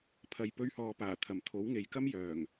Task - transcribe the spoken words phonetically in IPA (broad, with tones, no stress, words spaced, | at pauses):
pʰɐ˨jpɵ˧ɥhɔː˨paː˨˩ t̪ʰɐ˨˩mt̪ʰo˨˥wŋe˨jkɐ˥m jœː˨˩ŋ